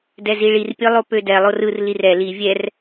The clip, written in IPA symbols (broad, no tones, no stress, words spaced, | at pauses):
dɛziɭir pʲɯlˠopødɛ lˠorɯr lirɛ li vʲɛr